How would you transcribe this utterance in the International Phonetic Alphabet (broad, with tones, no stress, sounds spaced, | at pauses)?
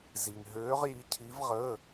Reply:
z i˧ ŋ ɦ øː˧˥ ʁ j i˧˥ cʰ i˧˥ v ʁ ə˧˥˧